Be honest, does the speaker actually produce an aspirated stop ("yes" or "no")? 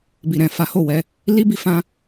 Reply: no